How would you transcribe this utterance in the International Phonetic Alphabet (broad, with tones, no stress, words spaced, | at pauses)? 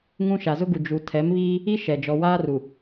ŋũ˦ ʃa˨zʊ˦ɡu˨ d͡ʒu˨tʰɛ˨˦mβiː˦ | i˦ʃɛ˨ d͡ʒɔ˨waː˦ru˨